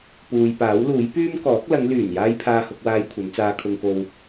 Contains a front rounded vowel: yes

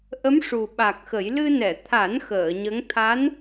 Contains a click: no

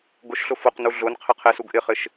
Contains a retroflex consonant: no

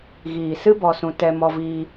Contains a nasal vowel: yes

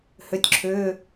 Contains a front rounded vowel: yes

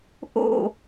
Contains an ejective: no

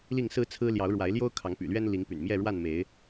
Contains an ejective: no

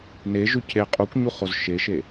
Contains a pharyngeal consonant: no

